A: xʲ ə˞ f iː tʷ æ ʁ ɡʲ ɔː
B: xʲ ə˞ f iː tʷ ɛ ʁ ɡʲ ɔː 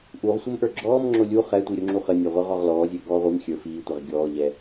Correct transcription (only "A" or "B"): B